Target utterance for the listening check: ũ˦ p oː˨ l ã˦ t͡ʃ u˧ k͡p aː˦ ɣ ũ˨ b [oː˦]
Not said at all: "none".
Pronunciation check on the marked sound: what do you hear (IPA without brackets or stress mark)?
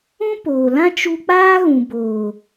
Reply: oː˨